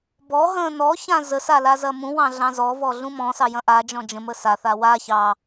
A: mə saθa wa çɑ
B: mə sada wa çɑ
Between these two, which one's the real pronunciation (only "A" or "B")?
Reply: A